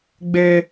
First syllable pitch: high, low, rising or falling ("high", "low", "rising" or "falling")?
high